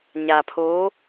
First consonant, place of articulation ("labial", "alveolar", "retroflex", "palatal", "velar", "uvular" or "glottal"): palatal